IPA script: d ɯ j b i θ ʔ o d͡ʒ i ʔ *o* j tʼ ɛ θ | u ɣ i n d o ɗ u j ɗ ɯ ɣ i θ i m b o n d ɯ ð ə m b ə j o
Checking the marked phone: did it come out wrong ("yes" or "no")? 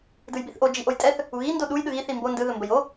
no